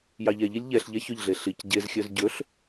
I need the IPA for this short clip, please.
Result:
j ɑ ʎ ɛ ʎ i lʲ ʎ ɛ ɬ ʎ ɛ ç ɵ ʎ ɮ e ɬ i c ɟ e z xʲ œ z ɟ ɵ ɬ

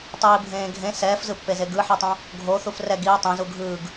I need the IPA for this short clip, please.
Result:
tˤ iː bʱ ẽː ɡʱ ẽ s ɛː f z ɯ pː e z e ɡ ɯ ħ ɛ tˤ õ | ɡʱ o θ u f r ɛ ɡ i e̯ tˤ ẽ z u ɡʱ ɯː ɡ

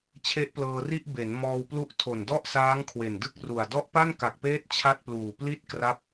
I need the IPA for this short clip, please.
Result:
t͡ɕʰ e˦˥ ʔ p l ɤː˧ r i˥˩ ʔ b e˩˦ n m ɔː˧ w p l u˦˥ ʔ tʰ o˨˩ n d ɔ˥˩ ʔ s aː˦˥ ŋ kʰ w e˨˩ n d ɯ˥˩ k̚ r u˨˩ a̯ d ɔ˦˥ ʔ p a˥˩ n k a˨˩ k̚ p eː˦˥ t̚ t͡ɕʰ a˥˩ t̚ p l uː˨˩ p l i˥˩ t̚ k r a˦˥ p̚

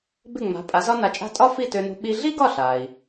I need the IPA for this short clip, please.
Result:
b ɪ˥˩ ŋ͡m a̤˩˥ pʼ a˩˥ z ɒ˥ n a˧ t͡ʃʼ a̤˥ tʼ ɒ˥ f i˥˩ t ø˧ n ṳ˧ ɓ i˧ ɮ i˥ ɡ ɒ˥˩ ɬ a˩ i̯

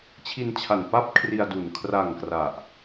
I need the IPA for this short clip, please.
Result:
t͡ɕʰ i˧ n t͡ɕʰ a˨˩ n p a˥˩ p̚ kʰ r i˧ a̯ d u˨˩ n kʰ r a˨˩ ŋ k r a˨˩ ʔ

